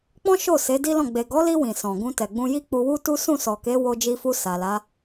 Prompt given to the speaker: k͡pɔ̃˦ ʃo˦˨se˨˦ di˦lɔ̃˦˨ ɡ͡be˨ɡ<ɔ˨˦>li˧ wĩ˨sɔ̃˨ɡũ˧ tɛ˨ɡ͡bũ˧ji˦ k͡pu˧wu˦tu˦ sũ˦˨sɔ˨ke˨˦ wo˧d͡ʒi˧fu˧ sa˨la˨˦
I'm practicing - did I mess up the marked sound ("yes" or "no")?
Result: no